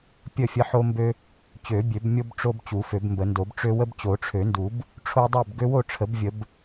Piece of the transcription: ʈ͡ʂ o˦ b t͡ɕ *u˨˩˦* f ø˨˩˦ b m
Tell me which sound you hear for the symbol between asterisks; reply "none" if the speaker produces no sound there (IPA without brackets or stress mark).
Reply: u˨˩˦